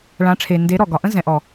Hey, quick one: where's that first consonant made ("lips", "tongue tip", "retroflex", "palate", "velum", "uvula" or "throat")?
retroflex